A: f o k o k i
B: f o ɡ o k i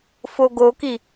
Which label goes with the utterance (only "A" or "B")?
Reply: B